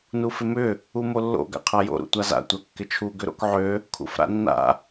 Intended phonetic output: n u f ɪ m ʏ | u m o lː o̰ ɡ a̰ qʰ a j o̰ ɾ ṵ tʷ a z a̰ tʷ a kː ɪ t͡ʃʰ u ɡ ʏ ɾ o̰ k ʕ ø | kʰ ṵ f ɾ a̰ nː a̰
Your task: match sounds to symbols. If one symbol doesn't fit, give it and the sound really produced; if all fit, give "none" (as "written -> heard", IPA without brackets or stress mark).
none